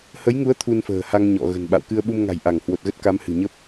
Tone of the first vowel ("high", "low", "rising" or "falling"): rising